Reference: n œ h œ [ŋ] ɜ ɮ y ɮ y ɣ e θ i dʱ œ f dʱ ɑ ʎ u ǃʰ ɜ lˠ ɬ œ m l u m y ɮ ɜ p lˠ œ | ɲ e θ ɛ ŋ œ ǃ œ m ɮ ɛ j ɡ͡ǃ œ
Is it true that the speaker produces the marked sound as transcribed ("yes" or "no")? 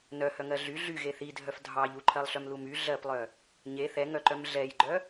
yes